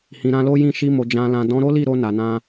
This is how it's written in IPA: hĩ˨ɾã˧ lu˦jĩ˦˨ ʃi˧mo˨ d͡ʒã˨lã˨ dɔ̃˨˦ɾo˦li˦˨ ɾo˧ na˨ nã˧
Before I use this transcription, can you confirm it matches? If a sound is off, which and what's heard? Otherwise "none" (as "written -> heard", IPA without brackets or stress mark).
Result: u˦ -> o˦